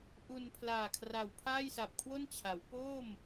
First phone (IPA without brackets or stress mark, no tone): ʔ